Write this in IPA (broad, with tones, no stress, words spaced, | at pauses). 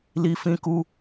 li˨fĩ˨ ku˨